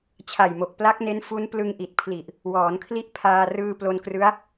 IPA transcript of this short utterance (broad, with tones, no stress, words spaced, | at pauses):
t͡ɕʰa˨˩jmo˨˩k̚ pla˦˥k̚ne˦˥n fu˦˥nplɯ˧ŋ ʔi˨˩t̚pʰli˨˩ʔ | wɔː˩˦nkʰli˥˩ʔ pʰaː˧ rɯː˧ plo˧nkrɯ˦˥a̯